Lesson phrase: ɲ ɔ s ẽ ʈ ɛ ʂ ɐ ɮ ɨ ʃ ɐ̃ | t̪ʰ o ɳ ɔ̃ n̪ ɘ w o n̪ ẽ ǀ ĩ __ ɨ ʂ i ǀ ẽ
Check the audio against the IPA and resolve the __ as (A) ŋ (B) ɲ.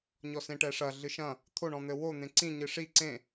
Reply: B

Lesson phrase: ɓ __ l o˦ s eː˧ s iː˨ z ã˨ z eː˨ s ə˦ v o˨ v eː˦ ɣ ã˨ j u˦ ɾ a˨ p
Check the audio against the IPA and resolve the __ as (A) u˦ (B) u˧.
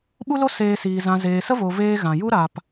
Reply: A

